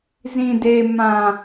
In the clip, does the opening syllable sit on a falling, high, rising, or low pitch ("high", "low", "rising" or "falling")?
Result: low